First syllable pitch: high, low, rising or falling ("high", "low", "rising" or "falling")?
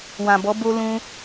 low